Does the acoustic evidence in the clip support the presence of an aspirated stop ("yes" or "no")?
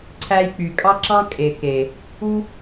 yes